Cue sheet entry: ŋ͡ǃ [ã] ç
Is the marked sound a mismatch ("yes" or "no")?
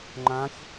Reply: no